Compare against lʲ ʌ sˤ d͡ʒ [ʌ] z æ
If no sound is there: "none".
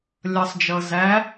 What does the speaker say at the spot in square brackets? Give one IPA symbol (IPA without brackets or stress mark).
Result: ʌ